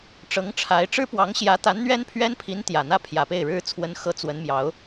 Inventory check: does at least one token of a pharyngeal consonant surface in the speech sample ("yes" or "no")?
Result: no